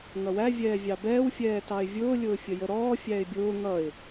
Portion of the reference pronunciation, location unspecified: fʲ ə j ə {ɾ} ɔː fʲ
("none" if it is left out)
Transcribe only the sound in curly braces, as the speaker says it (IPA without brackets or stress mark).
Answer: ɾ